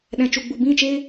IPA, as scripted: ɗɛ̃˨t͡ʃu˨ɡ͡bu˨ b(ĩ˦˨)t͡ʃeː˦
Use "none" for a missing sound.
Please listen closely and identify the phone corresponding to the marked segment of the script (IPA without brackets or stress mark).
ĩ˦˨